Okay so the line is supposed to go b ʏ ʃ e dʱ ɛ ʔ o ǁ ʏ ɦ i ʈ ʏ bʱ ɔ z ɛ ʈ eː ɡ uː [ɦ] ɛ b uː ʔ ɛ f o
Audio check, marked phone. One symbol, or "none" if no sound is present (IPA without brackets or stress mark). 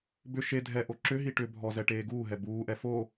ɦ